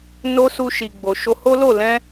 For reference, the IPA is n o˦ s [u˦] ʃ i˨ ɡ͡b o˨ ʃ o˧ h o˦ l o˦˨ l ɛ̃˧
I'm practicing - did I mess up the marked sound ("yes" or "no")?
yes